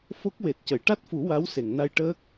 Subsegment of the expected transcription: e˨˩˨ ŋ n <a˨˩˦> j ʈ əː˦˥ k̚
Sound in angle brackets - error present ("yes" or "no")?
yes